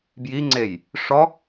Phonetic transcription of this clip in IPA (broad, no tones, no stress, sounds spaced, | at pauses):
b j i ŋ͡ǀ e j | ʂ ɔ